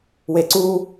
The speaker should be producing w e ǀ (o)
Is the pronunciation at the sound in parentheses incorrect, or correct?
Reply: incorrect: u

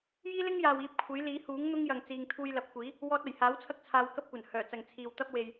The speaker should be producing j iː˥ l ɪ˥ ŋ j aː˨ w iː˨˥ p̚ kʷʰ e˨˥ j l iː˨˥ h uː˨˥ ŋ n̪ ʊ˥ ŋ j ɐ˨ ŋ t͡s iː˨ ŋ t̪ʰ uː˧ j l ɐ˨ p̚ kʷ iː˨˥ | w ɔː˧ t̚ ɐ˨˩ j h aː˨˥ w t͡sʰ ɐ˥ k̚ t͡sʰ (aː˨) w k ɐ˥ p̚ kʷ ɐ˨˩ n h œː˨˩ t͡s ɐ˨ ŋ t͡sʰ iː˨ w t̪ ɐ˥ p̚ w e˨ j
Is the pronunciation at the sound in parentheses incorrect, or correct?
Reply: incorrect: aː˨˧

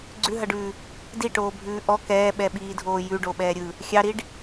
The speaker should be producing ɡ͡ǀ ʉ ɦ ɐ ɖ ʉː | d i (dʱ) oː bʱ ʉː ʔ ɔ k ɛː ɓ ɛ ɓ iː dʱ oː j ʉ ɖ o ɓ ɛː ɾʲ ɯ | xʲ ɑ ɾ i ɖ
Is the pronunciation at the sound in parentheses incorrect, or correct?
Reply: incorrect: ʈ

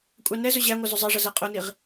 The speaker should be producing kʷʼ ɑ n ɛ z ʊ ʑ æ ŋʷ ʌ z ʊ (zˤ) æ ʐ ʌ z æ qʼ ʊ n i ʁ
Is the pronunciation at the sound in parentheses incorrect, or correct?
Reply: correct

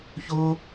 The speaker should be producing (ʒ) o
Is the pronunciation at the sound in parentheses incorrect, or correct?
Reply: incorrect: ç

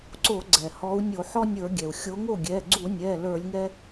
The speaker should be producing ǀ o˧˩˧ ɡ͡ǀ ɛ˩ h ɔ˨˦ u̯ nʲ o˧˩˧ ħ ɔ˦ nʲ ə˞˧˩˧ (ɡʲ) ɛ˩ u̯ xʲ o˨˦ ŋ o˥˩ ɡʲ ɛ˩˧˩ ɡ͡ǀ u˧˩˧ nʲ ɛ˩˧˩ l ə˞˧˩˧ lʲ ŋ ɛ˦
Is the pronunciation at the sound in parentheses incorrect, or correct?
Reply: correct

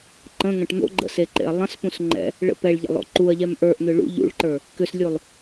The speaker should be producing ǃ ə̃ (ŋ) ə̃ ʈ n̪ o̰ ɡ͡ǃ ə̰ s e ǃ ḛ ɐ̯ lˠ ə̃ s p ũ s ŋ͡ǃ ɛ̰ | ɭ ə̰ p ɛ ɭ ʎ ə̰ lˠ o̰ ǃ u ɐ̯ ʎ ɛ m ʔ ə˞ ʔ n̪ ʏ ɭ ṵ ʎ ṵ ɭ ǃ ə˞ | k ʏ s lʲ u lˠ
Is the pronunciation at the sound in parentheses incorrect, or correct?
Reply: correct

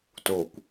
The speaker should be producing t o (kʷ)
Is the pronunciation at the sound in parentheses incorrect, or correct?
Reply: correct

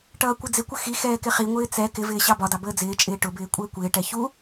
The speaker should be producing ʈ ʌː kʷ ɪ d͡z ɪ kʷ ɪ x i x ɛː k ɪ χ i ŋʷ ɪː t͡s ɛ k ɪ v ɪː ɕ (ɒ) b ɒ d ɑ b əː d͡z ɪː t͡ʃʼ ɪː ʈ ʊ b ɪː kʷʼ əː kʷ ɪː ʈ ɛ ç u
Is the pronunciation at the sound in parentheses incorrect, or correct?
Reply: incorrect: ɑ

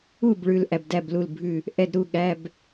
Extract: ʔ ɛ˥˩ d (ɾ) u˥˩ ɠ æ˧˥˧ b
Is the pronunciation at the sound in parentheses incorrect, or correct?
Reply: correct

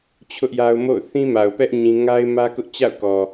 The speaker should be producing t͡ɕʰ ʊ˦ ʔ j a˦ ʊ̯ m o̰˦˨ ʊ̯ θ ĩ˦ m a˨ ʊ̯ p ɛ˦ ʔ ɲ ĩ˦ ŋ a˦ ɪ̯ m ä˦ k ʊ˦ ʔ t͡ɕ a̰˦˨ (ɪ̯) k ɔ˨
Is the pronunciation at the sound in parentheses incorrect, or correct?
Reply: incorrect: ʊ̯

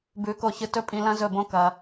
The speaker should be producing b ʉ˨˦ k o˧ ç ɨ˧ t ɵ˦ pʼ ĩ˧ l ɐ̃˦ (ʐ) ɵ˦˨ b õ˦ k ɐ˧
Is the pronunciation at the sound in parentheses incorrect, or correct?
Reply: incorrect: z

